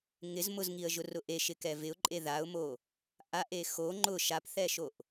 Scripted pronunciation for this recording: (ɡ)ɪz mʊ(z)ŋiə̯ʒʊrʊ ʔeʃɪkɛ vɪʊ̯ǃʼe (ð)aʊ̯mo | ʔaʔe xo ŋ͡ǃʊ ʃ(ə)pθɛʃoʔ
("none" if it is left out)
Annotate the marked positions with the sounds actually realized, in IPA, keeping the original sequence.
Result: ŋ, z, ð, a

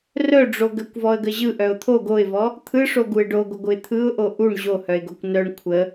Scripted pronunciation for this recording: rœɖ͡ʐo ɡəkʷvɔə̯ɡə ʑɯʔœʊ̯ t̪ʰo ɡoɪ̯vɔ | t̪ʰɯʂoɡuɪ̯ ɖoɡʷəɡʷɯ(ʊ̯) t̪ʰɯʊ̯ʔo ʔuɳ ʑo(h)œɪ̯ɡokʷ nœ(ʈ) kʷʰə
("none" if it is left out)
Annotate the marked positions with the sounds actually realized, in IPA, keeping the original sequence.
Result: ɪ̯, h, ɳ

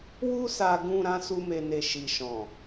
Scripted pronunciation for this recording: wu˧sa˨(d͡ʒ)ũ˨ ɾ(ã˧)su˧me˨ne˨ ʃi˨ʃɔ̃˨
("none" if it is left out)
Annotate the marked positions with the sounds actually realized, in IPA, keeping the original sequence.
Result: ɡ, ã˧

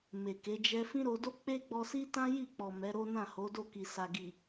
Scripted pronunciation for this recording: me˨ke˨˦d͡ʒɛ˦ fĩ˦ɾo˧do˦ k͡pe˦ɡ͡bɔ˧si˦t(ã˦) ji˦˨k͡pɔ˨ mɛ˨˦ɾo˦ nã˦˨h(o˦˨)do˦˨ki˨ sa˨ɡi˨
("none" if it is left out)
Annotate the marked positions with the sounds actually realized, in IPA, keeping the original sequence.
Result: ã˦, o˨˦

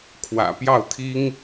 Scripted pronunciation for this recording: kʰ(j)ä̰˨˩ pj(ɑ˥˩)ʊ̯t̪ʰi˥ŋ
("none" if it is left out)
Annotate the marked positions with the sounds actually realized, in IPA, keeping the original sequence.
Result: w, ɑ˥˩

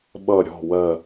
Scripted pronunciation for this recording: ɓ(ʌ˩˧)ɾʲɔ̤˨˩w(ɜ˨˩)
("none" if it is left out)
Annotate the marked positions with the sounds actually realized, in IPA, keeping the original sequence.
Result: ʌ˨˩, ɜ˨˩

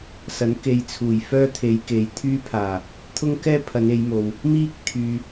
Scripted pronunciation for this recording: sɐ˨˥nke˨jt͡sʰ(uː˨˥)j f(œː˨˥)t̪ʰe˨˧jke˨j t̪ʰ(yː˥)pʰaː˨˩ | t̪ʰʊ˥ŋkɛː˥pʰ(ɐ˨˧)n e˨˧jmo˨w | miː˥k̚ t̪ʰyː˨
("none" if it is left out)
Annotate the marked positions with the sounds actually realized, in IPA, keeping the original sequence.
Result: uː˨˩, œː˥, yː˥, ɐ˨˧

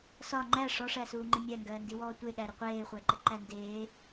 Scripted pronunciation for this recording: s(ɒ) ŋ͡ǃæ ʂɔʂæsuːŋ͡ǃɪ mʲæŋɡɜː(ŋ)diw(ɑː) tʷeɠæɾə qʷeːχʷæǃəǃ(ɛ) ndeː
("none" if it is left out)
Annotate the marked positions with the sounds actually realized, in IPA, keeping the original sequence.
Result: ɒ, n, ɔː, æ

